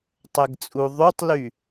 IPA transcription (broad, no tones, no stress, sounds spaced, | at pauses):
tˤ ɛ ɡ t͡sʼ u ðˤ y tˤ l y